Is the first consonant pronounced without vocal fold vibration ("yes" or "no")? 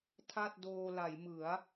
yes